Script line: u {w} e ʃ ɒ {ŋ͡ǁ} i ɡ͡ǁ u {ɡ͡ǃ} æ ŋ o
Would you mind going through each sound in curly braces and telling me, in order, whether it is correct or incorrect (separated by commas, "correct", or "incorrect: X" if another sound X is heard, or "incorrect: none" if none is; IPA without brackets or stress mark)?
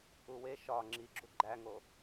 correct, correct, correct